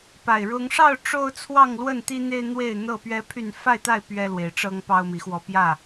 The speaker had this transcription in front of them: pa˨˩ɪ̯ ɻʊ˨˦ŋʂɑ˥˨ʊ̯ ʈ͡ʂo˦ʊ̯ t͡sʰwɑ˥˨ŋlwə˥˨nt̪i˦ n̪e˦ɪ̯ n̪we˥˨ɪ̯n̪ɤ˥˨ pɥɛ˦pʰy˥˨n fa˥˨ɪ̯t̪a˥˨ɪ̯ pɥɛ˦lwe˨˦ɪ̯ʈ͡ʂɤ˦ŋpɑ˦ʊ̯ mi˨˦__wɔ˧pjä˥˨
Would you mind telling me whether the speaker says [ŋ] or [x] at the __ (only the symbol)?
x